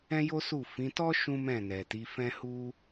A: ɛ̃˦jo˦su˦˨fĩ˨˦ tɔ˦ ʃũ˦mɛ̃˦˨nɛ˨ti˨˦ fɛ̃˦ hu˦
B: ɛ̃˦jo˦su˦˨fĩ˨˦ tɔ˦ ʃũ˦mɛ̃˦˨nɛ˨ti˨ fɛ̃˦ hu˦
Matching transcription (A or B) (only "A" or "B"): A